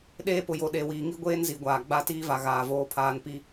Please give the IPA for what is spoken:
ɗ eː˦ p ʊ˨ j o˨ ɗ e˨ w iː˨ ŋ i˦ ɡʷ eː˦ n z i˨ ɡʷ aː˨ ɡ͡b a˦˨ t iː˦ v a˨ ɣ aː˨ v oː˦ pʰ aː˦ n p i˦

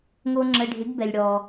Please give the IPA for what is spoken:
ŋ o˧ ŋ͡ǁ ə˩˧˩ ɖʱ ɪ˩˥ ɡ b ɛ˩ lʲ ɽ ɔ˩

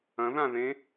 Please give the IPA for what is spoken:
ɐ̃ ð ã ð ẽ

